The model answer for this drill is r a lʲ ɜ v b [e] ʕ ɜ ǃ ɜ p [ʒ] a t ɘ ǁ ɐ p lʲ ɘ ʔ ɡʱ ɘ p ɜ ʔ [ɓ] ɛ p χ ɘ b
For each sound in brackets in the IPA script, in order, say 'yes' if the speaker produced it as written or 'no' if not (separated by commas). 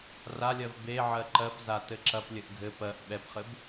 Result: yes, no, yes